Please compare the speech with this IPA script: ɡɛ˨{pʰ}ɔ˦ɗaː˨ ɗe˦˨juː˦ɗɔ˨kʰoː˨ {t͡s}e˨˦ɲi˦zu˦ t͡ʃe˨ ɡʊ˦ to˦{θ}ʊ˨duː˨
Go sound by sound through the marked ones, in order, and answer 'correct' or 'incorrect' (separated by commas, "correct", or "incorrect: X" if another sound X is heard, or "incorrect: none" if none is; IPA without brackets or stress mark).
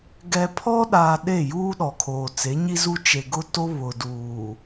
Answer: correct, correct, incorrect: β